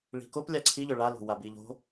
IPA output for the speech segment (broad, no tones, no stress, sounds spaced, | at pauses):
ɭ i̤ k o p lʲ a ǀʰ i ʎ ʏ ɭ a l o̤ w a b i ʎ o̤